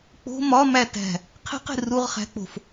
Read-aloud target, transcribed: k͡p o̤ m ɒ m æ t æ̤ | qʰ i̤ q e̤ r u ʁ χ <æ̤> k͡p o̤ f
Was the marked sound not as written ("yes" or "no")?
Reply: no